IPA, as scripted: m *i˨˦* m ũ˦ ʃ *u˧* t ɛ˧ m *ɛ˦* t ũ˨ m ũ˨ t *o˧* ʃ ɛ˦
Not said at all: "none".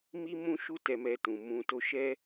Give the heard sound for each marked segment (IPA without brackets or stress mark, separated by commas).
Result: i˦, u˦, ɛ˧, o˧